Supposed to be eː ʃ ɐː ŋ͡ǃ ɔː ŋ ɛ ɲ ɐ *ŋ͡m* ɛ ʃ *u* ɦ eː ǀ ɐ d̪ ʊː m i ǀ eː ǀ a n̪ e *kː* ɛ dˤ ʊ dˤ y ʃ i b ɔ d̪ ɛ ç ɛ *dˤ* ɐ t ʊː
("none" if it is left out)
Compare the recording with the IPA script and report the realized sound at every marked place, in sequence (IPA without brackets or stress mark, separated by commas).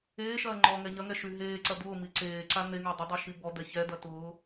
ŋ, y, ŋ, d̪